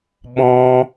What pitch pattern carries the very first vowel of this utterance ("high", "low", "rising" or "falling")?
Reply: high